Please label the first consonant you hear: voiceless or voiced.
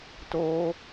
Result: voiceless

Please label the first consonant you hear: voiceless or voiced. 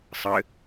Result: voiceless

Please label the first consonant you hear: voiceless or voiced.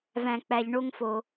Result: voiced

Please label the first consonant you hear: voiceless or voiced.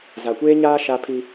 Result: voiced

